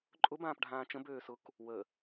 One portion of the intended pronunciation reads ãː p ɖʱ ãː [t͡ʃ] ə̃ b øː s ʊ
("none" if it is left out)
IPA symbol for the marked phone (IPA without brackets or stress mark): t͡ʃ